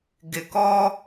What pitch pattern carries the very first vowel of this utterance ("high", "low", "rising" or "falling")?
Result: low